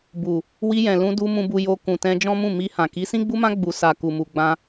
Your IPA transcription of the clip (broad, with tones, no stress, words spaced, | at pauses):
bu˨ | wi˧jɛ̃˨lũ˧du˧ mũ˧bu˧ jo˧ kũ˨ tɛ̃˧d͡ʒɔ̃˦mũ˦˨ mi˧hã˨ ki˨˦sĩ˦ɡ͡bu˦mã˦ ɡ͡bu˧ sa˧ ku˨mu˨ɡ͡bã˧